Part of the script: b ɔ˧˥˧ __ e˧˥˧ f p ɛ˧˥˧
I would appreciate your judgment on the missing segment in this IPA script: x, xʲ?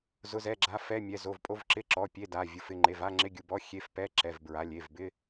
xʲ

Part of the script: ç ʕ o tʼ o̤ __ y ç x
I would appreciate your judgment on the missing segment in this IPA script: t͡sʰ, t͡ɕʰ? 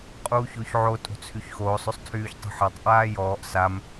t͡sʰ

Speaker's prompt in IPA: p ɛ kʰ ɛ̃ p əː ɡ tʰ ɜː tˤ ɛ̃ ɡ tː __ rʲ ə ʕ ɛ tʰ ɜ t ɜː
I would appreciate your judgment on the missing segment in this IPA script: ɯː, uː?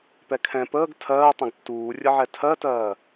uː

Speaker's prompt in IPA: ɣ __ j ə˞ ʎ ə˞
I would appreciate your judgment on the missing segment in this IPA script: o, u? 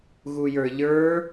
u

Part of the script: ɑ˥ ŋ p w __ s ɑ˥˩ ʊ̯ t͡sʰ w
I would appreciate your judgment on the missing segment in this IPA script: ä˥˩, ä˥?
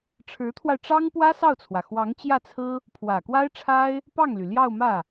ä˥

